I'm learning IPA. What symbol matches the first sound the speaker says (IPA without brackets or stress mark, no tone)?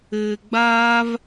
ɘː